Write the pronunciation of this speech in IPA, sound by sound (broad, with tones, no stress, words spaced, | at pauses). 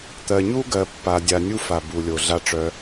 t̪ɜ˧ɲu˦ɡɜ˧ pːa˧dʲa˧ nʲu˧fa˨bu˨ lʲo˧ɮa˦ʈ͡ʂœ˦